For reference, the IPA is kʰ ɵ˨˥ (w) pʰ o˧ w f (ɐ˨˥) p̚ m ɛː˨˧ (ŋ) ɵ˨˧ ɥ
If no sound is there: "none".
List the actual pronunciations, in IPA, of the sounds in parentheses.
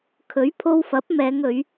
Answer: ɥ, ɐ˨˥, ŋ

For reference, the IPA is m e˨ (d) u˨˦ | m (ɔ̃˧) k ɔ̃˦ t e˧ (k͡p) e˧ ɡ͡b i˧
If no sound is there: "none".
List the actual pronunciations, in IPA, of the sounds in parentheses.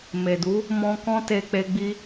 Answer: d, ɔ̃˧, k͡p

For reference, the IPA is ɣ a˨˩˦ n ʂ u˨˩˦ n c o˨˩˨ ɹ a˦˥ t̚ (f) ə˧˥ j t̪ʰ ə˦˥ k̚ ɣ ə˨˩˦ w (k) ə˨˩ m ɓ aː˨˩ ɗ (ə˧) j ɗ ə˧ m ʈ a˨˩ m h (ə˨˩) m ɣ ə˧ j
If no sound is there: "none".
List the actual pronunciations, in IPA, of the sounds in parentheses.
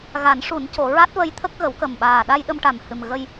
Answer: v, k, a˧, ɨ˨˩

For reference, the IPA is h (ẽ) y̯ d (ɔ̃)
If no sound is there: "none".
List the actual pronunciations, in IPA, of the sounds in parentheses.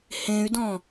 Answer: ẽ, ɔ̃

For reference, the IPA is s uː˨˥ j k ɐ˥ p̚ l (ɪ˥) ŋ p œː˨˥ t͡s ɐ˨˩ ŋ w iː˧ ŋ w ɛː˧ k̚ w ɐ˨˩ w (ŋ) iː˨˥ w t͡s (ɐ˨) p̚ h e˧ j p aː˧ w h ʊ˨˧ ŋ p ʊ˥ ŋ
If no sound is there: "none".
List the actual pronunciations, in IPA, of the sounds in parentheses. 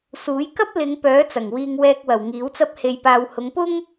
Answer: ɪ˨˧, ŋ, ɐ˥

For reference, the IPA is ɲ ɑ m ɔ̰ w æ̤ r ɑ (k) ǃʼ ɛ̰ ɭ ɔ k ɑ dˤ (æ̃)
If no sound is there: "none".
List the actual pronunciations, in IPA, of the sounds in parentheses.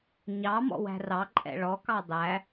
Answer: none, æ

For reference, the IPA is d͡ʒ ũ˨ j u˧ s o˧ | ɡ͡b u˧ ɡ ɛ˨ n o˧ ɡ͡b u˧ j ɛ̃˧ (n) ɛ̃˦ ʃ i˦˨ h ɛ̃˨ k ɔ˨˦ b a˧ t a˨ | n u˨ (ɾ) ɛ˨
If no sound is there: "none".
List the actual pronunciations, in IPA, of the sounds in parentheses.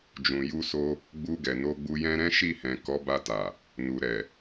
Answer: ɾ, ɾ

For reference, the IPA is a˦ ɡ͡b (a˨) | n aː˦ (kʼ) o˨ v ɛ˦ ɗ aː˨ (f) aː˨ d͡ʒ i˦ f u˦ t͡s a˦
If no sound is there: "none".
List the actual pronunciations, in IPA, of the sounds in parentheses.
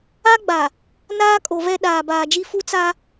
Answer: a˨, kʼ, b

